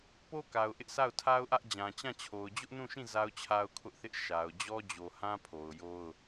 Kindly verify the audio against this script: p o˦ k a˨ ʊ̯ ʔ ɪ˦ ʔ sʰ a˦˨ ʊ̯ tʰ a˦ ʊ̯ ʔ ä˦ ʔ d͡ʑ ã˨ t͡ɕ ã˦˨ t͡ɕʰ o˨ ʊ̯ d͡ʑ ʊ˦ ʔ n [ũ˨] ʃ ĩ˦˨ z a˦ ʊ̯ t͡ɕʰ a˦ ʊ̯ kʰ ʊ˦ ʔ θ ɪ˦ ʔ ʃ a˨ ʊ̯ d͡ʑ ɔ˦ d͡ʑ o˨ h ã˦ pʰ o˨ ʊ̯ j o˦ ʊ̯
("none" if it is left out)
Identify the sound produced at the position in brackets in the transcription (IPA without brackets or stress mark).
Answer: ũ˦˨